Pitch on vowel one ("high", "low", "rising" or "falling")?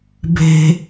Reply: high